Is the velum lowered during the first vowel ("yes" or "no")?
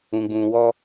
yes